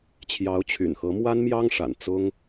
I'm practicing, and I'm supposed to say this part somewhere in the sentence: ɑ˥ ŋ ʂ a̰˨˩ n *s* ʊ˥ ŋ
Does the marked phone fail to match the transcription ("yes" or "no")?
yes